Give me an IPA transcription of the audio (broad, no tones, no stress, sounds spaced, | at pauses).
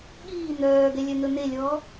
ɠ iː n̪ œː ɡ ɛ lʲ œ n̪ ɵ n̪ e lʲ ɔ